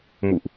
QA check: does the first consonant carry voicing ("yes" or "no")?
yes